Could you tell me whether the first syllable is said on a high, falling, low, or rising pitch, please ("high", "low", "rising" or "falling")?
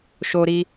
high